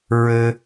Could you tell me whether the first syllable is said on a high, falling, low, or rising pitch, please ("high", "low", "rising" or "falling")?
high